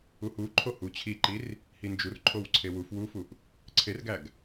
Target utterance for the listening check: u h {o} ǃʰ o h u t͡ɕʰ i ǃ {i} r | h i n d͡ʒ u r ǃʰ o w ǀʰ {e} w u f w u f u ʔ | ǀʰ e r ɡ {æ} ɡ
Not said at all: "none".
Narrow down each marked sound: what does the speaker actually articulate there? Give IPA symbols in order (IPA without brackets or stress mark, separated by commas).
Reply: u, i, e, æ